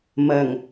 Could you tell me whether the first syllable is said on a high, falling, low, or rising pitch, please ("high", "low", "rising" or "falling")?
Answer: low